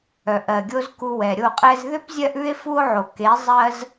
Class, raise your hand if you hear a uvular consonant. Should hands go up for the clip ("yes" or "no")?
yes